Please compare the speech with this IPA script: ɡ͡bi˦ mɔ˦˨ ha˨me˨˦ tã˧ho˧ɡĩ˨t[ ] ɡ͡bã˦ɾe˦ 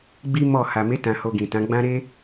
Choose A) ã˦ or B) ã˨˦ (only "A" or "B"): B